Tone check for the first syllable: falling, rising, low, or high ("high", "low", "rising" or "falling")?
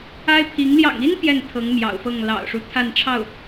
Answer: high